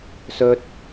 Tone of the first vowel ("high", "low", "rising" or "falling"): high